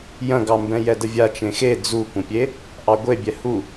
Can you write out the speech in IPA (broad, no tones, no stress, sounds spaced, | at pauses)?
j ɐ̃ ɡ ɑ m b ɛ̃ j ɛ d ə vʲ a t͡ʃ ẽ x e d͡z u kʷ ɐ̃ pʲ e | ʔ ɑ ɡʷ e bʲ ɛ h u